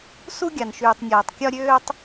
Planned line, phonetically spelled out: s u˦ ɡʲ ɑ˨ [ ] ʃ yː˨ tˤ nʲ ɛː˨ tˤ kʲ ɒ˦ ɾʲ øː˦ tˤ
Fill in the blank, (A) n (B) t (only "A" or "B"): A